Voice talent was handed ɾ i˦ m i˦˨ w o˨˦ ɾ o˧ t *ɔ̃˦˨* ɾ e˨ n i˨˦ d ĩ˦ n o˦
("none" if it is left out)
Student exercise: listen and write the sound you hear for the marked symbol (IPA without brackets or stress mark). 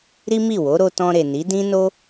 ɔ̃˧